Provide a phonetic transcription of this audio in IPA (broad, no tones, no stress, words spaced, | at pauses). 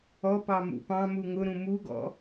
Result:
ɔ pɑmṵpɑ̃mu ŋʊɾũ muɡɔ̰